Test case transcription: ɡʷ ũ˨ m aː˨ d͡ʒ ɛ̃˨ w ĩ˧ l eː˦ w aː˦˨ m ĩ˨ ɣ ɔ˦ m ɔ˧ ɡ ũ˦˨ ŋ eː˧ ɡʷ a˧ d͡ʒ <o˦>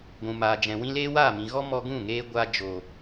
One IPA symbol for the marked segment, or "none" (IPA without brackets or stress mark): o˨